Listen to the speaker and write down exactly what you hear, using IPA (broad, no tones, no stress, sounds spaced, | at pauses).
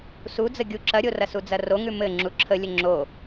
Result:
s u d͡z ə ɡʲ u ǁ ɐ ɾʲ o r ɐ s u d͡z ɐ r o ŋ ʉ m ɘ ŋ͡ǁ u ǁʰ ə lʲ ə ŋ͡ǁ o